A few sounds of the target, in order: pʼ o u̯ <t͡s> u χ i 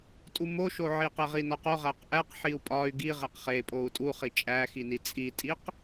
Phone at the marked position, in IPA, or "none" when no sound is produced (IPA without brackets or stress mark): tʼ